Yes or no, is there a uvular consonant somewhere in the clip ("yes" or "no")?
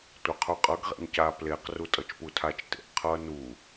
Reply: yes